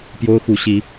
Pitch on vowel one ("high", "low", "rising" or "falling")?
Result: high